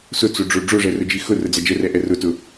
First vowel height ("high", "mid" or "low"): high